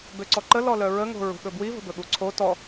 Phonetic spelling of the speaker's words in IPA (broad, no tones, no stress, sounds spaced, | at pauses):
b ø ǀ ɔ ǃ ə l ɔ l œ ɹ ə ŋ o̤ ɹ ṳ ɠ ɵ b w i v ə̤ b ɵ ɠ u ǀʰ o t ɔ